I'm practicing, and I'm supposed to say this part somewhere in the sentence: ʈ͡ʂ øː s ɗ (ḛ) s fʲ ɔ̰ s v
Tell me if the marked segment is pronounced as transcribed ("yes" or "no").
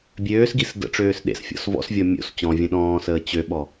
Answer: yes